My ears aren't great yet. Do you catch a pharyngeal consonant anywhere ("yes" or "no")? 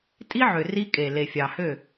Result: yes